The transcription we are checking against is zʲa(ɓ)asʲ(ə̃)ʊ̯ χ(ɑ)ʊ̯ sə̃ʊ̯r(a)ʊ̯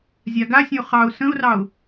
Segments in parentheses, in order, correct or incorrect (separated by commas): incorrect, correct, correct, incorrect